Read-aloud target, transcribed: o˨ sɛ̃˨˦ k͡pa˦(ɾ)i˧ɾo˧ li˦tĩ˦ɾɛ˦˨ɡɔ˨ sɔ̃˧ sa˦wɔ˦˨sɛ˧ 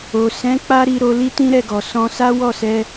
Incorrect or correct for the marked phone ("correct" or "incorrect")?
correct